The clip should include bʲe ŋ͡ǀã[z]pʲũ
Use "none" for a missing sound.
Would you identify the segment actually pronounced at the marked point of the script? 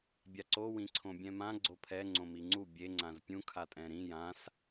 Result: z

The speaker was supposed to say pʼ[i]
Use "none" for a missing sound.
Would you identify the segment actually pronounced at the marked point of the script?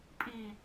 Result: i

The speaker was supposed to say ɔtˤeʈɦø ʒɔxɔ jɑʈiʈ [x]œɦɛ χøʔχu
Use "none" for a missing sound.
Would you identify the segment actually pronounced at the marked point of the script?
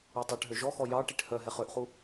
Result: h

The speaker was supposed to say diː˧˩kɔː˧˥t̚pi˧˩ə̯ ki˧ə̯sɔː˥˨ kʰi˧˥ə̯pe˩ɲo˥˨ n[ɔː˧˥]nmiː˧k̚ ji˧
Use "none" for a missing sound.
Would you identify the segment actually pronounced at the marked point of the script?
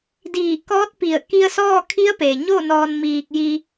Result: ɔː˧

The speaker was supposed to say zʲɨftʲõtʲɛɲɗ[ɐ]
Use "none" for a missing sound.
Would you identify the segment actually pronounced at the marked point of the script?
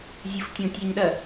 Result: ɐ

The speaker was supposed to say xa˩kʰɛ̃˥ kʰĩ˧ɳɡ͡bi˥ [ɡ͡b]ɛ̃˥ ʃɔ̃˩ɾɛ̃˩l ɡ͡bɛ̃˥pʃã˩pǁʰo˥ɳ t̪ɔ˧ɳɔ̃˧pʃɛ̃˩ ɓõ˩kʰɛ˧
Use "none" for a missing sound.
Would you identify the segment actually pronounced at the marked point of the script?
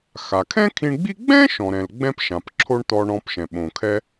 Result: ɡ͡b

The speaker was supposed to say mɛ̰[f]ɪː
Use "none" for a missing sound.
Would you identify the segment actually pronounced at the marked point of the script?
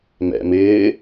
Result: m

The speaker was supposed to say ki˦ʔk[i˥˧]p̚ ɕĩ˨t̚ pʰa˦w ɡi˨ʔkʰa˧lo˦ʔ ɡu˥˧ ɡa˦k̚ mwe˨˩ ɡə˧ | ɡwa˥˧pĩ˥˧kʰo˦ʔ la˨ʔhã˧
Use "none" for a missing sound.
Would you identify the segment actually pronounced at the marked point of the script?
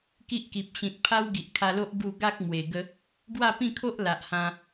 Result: i˨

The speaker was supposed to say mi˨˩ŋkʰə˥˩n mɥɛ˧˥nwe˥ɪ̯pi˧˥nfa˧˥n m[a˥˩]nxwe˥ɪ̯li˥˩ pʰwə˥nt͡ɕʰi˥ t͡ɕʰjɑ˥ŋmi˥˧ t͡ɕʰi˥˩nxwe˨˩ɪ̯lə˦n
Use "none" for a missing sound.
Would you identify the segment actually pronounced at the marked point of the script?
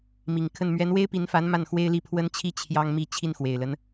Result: a˥˩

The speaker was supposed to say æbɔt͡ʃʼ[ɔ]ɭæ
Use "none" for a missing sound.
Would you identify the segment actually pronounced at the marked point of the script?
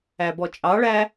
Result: ɑ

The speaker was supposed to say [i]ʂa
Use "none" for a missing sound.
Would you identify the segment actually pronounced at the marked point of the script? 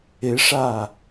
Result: ɪ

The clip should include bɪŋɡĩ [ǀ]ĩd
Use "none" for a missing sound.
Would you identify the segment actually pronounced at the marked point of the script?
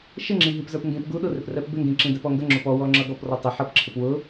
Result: ǁ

